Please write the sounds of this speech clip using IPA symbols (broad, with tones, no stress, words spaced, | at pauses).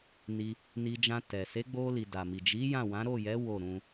ni˧ | ni˧d͡ʒã˧ tɛ˨ se˨˦ɡ͡bo˧li˨ da˨mi˨ d͡ʒi˨˦ jã˦˨wã˨˦ ɾo˦˨jɛ˨˦ wo˦˨ɾũ˧